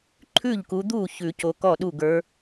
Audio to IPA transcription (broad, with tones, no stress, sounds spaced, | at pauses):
ǃʰ ʉ˥˩ ʎ k u˨˦ d̪ uː˥˩ ç ʉ˨˩˦ c o˨˦ k ɔ˥˩ ɗ u˥˩ ɡ ə˞˨˦